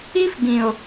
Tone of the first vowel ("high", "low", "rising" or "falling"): high